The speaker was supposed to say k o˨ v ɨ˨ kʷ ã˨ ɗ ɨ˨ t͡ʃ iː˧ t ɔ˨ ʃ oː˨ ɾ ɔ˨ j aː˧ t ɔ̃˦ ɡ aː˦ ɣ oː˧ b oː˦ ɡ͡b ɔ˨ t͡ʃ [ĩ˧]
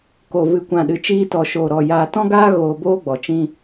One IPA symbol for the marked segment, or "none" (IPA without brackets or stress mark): ĩ˦